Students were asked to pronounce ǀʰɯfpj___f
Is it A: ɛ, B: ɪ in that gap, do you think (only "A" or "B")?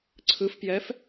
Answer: A